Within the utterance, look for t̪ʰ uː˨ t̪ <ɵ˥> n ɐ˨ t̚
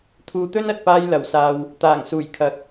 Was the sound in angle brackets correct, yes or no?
yes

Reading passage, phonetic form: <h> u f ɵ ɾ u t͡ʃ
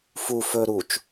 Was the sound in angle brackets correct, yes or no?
no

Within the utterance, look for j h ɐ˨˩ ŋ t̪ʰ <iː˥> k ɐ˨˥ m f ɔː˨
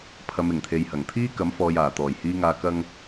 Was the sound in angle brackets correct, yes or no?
yes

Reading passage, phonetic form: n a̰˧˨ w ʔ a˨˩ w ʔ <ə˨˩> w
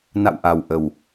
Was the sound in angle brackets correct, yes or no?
yes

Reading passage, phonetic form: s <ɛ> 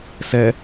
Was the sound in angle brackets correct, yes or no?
yes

